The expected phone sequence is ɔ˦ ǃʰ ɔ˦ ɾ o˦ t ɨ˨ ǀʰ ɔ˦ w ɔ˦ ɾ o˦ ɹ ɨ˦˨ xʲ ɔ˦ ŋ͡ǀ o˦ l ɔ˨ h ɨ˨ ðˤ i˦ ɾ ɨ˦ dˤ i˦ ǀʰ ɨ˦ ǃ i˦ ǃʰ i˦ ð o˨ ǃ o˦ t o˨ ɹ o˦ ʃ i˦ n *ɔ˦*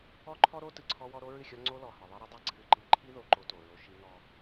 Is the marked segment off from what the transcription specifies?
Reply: no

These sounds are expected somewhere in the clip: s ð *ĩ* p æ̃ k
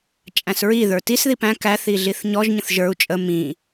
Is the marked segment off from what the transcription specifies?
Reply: yes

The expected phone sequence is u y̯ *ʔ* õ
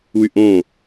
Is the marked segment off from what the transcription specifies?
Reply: no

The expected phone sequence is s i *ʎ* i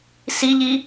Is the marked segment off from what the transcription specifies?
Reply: no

